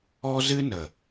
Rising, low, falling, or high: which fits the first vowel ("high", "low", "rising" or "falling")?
high